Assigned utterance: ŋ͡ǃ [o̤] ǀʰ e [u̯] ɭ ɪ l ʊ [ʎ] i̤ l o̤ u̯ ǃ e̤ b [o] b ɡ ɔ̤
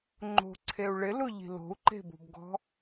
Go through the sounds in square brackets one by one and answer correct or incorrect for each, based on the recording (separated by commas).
correct, correct, correct, incorrect